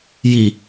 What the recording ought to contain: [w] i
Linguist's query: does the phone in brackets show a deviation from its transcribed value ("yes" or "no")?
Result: yes